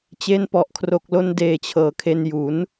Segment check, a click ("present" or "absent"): absent